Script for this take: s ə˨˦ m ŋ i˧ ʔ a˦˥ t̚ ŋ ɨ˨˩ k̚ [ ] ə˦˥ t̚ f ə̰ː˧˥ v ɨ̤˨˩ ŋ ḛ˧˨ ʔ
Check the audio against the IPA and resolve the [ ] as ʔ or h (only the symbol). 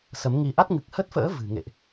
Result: h